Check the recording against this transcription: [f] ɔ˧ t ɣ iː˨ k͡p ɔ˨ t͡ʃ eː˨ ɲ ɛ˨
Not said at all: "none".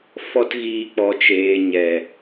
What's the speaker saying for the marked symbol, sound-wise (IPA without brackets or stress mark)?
f